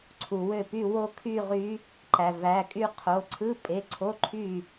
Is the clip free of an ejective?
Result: no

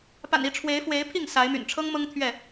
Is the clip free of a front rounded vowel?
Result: no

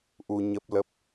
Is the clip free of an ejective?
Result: yes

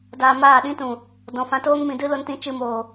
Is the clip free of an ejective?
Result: yes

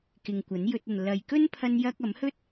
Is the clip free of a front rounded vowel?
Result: yes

